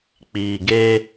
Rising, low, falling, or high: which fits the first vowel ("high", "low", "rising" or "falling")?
low